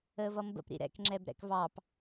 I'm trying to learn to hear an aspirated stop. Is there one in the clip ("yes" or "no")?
no